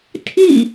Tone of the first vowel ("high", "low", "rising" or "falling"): falling